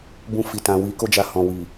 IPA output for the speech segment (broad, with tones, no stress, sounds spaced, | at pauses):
b ũ˧ f i˨ t ã˨ w i˨˦ k o˦ d͡ʒ a˧ h ɔ̃˨ w i˨